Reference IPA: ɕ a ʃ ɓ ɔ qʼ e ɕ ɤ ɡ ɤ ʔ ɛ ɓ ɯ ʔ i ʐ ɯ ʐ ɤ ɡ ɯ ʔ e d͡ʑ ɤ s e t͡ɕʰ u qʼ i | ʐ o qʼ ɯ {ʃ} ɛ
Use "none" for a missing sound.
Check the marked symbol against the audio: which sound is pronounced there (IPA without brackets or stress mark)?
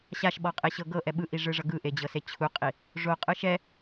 ʃ